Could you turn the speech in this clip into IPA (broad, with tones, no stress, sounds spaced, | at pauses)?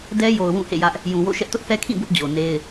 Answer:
d ɛ˦ j o˨ ʊ̯ w ũ˦˨ h ḛ˦˨ j ä˦ ʔ | j ũ˨ w o̰˦˨ ʃ ɛ˦ ʔ t ʊ˦ ʔ θ ɛ˦ kʰ ĩ˦˨ b ʊ˦ ʔ d͡ʑ o˨ n e˦ ɪ̯